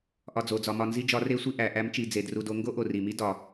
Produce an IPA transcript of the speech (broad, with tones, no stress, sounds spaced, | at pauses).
ʔ ɒ˧ d͡z o˩˧ d͡z ɒ˩˧ m ɒ˧ n z i˥ d͡ʒ ɒ˧˥ r e˥ sʷ i˥ ʔ æ˩˧ ʔ æ˧˥ m t͡ʃ i˩˧ d͡z e˩˧ d r u˧ d o˧˥ ŋ ɡ o˥ ʔ o˩ r i˩ m i˥ d ɒ˩